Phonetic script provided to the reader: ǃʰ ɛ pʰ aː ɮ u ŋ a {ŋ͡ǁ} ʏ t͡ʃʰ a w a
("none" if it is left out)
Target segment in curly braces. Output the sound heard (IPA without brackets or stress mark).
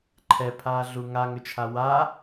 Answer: ŋ